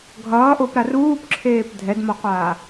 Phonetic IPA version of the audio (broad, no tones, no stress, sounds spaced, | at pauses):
ɡʱ ʌː ʔ o p ɾ a r uː p ǁʰ eː p dʱ ɛ d m ʌ qʷ aː